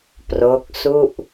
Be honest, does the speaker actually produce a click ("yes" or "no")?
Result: no